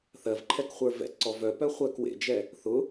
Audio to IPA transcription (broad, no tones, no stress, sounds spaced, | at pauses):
θ ɜ v ǃʰ ɛ k χʷ ə˞ v ɛ̰ t ǀ ɔ v œ p œ χʷ ɜ k w ḛ d͡ʒ ɛ | θ ʊ